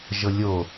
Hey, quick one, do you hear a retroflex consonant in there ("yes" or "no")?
no